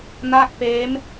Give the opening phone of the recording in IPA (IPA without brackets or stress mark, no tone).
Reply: n